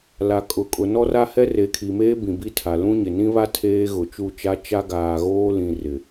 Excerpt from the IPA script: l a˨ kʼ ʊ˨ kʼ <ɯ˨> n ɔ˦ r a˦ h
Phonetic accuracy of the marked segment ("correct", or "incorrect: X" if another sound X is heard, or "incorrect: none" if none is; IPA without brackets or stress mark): incorrect: ʊ˨